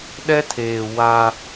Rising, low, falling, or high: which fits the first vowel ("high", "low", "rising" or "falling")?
high